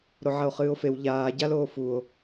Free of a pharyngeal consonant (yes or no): no